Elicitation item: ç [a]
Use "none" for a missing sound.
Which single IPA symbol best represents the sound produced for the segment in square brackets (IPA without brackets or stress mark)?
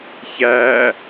æ